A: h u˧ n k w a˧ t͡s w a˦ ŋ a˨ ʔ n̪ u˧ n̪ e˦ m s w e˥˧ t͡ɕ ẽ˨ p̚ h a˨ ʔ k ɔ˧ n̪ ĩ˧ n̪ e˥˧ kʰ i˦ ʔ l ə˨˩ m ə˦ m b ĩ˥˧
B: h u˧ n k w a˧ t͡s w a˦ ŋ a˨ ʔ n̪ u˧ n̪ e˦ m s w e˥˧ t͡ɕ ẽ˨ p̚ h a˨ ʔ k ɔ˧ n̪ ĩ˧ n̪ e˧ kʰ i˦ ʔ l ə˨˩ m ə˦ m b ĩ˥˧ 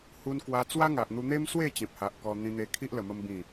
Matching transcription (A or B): B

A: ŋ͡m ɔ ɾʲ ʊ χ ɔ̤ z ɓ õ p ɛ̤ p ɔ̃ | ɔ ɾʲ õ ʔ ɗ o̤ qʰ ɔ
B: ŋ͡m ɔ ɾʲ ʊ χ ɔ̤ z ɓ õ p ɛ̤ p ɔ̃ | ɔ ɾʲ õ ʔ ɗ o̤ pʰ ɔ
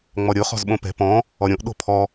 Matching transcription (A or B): B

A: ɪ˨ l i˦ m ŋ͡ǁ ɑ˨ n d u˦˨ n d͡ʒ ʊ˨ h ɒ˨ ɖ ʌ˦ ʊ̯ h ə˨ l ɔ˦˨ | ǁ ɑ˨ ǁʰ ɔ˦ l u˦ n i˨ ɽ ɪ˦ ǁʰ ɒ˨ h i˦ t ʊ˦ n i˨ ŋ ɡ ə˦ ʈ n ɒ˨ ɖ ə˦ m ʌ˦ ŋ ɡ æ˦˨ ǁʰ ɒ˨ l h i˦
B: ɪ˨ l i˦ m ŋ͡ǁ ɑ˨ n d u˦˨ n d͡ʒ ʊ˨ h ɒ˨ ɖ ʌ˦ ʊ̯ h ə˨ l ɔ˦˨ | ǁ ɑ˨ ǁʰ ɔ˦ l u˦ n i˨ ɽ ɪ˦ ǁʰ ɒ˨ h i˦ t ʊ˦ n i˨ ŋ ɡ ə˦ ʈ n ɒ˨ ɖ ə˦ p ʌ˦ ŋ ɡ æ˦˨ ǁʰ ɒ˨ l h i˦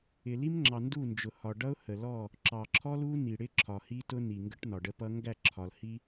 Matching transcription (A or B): B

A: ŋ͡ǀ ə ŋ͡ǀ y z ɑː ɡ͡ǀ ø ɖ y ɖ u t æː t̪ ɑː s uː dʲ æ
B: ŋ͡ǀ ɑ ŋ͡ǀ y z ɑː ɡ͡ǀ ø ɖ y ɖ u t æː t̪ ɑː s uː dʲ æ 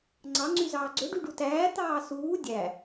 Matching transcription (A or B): B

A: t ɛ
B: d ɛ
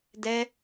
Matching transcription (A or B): B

